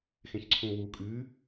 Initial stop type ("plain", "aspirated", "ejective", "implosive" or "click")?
click